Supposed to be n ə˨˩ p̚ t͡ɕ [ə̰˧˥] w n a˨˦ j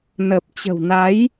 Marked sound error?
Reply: yes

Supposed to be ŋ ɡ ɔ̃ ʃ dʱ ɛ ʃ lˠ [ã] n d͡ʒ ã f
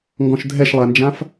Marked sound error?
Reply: yes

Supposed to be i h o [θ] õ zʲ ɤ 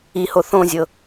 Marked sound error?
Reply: no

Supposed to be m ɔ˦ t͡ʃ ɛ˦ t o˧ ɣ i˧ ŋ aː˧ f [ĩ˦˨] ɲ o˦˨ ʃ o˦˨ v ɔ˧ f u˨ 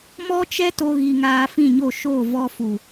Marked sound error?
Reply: no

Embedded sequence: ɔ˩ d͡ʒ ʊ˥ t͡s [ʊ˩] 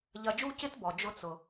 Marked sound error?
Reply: no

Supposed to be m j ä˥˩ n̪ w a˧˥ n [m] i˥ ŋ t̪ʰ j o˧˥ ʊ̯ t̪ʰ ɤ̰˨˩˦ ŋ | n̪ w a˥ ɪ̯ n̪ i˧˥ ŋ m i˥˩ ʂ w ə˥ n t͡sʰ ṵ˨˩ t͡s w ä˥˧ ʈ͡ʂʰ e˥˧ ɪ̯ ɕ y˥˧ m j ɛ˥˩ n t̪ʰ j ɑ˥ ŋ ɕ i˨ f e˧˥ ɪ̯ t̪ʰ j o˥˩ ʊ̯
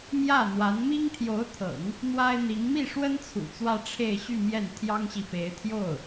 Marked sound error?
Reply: no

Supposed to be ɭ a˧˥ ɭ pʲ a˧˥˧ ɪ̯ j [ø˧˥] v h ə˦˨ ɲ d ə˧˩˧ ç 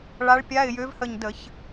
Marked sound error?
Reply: no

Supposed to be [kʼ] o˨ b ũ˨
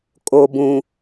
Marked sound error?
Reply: no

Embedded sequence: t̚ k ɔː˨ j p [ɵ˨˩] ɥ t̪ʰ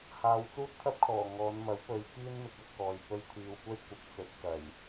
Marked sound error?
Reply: yes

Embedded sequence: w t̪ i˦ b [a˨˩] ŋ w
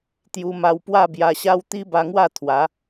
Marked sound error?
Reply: yes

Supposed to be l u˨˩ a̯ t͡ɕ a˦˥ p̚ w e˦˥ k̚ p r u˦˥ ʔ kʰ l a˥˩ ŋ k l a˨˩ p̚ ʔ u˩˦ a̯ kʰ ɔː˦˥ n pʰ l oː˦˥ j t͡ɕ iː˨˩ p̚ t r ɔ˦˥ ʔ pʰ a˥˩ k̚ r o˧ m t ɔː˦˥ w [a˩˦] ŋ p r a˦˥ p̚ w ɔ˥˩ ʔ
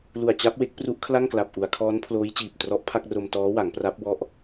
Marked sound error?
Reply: no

